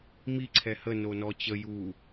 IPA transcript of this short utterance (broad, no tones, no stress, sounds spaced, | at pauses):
m i ǀʰ ɛ h ə n o n ɔ t͡ɕ ə j u